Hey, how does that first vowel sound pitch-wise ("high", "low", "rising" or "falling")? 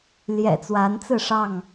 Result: low